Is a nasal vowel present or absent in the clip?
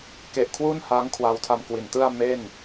absent